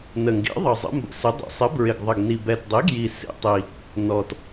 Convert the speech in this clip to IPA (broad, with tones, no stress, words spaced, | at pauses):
nə˨˩ŋɡḭ˨˥ðˤʌ˨˩ zˤə̰˨˥mbə̰˨˥sɪ˨˥ dˤḭ˨˩sˤɪ˨˥ bɹɪ˨˩ɡðˤə˨˩ɡni˨˩ bɛ˨˩tdˤi˨˥ ɡji˨˩ sḭ˨˩tˤi˨˩ | nɔ˨˩t